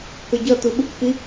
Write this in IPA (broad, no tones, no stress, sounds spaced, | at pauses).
k ʌ ɟ ʌ t̪ u ɓ ɯ kʷ x i